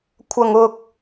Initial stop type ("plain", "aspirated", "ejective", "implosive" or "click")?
aspirated